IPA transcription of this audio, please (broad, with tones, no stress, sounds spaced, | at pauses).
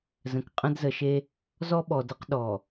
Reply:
z ə̃˨ k qʼ ə̃˦ d z ə˨ ʃ e˦ | z ɔ˦ ɓ ɔ˨ d ə˦ q ɗ ɔ˨